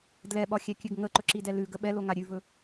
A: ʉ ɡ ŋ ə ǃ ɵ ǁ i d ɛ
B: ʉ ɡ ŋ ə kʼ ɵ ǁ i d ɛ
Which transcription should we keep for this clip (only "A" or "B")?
A